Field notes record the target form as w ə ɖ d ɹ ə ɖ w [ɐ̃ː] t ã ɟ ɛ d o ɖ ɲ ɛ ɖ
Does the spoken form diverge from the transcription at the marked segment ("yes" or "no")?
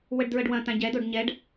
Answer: yes